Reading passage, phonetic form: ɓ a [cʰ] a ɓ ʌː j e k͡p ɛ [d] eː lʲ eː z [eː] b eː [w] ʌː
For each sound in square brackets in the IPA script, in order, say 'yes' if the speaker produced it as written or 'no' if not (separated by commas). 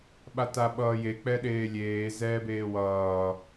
no, no, no, yes